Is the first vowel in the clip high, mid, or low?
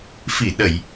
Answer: high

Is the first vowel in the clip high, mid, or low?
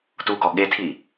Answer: high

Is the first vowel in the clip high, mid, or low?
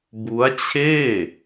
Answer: high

